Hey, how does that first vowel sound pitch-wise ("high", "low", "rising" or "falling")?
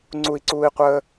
high